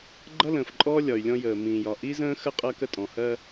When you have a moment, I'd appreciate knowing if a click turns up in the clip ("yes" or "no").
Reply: yes